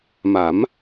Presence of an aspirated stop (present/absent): absent